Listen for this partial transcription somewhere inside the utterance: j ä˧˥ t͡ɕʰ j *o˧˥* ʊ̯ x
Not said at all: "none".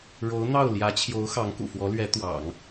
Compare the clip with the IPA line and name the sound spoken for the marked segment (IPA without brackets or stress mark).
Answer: o˧˥